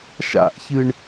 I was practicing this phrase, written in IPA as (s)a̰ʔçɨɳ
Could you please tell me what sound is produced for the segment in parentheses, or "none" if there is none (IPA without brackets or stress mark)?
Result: ʃ